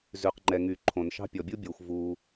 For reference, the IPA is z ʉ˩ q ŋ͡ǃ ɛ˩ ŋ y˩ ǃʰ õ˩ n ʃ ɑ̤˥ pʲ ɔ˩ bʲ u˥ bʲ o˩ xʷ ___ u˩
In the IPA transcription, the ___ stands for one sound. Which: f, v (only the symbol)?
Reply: v